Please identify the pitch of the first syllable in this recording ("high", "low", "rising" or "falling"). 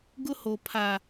high